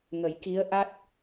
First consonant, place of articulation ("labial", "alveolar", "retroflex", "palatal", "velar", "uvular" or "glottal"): velar